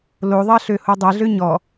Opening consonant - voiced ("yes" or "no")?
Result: yes